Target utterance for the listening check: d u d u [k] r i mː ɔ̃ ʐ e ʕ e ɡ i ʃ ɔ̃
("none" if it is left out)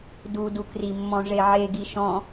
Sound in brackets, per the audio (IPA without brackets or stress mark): k